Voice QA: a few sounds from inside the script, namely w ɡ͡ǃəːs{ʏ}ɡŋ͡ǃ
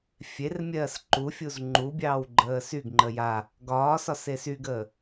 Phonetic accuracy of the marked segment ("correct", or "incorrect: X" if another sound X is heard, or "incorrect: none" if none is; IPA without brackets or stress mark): incorrect: y